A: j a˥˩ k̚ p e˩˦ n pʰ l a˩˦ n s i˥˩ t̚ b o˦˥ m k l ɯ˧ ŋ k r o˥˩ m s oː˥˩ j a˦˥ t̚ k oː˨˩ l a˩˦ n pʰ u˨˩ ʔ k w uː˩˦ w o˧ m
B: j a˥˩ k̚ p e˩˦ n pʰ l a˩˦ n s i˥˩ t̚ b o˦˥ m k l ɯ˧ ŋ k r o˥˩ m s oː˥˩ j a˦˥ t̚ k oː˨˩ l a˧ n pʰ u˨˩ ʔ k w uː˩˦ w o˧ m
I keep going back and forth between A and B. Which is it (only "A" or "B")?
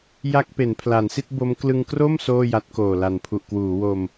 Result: A